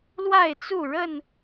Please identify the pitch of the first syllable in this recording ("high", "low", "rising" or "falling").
falling